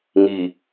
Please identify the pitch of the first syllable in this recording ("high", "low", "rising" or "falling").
low